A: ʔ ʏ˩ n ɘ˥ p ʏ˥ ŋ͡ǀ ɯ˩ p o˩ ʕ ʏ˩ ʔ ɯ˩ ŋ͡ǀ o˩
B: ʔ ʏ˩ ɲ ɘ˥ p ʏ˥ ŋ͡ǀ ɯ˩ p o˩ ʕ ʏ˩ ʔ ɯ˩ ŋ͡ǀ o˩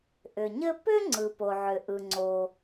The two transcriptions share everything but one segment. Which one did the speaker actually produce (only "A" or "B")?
B